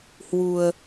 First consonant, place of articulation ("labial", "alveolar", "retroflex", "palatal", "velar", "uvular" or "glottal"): glottal